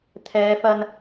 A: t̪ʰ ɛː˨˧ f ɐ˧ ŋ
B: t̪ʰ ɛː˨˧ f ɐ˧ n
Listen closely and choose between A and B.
B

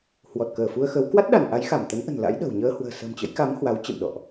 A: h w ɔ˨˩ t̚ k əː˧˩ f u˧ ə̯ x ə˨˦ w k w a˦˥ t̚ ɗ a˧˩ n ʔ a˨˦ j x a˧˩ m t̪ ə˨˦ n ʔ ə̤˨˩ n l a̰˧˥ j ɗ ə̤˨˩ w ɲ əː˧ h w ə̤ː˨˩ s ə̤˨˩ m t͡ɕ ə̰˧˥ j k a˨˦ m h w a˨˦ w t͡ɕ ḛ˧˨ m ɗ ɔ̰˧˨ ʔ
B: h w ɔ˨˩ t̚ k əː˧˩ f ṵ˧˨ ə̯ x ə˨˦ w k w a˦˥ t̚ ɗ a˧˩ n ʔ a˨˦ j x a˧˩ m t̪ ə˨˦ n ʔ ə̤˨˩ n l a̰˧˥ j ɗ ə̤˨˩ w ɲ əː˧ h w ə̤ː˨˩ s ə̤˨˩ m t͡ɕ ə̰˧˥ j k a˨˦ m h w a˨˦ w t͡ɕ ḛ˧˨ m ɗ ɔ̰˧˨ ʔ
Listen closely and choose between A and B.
A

